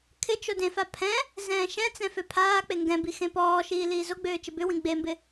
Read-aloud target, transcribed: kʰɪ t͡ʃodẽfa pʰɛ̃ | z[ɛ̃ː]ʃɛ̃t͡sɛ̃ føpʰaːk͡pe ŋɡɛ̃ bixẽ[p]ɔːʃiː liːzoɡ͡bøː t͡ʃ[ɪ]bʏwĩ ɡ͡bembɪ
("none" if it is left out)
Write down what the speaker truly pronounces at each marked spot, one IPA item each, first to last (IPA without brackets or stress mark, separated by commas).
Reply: ɛ̃ː, p, ɪ